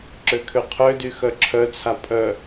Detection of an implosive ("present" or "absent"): absent